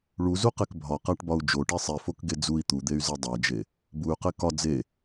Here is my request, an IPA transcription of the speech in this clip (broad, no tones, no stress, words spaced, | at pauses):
ɭuzuqek bʱɒqæʈbɒu̯ d͡ʒoʈi sˤifokɡe d͡zui̯ t̪ud̪ey̯ze dˤæd͡ʒe | buy̯qe kɒ d͡ze